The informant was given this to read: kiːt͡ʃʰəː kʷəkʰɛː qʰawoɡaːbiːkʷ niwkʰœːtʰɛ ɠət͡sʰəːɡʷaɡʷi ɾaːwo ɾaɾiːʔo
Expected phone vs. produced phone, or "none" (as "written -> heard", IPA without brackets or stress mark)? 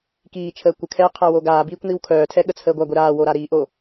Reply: none